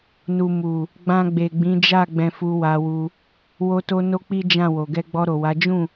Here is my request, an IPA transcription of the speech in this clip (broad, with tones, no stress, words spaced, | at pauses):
nu˨ mu˨ | ɡ͡bã˧ ɡ͡be˨ɡ͡bĩ˨˦d͡ʒa˦˨ ɡ͡bɛ̃˧fu˧wa˧wu˧ | wo˧to˧ no˦k͡pi˦ d͡ʒã˦˨wo˨ ɡɛ˧ɡ͡bɔ˧ɾo˨wa˨˦ d͡ʒũ˦˨